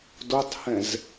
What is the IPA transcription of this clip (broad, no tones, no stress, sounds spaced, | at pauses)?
d o tˤ h ɛ̃ z